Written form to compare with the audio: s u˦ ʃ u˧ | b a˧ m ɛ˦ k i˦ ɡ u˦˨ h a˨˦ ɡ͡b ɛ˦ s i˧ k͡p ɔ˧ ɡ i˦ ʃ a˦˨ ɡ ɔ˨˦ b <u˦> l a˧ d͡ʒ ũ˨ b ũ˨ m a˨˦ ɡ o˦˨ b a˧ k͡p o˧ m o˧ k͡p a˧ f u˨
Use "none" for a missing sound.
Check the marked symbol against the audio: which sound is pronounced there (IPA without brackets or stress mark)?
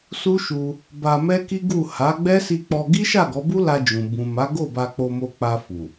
u˦